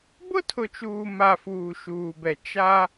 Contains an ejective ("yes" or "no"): no